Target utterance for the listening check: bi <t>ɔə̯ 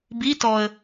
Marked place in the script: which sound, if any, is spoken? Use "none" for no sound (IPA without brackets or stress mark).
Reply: t